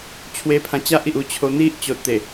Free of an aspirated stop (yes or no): no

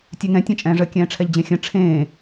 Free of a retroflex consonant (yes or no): no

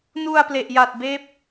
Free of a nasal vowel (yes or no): yes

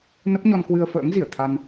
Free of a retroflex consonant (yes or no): yes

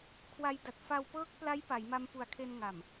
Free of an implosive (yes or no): yes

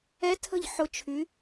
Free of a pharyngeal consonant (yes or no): no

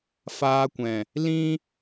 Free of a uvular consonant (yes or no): yes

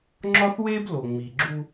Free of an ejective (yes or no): yes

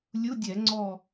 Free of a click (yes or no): no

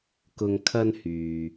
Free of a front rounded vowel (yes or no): no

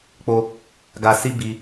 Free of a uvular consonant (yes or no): yes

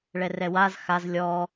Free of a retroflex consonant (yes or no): no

